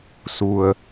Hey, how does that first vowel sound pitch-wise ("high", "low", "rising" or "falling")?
low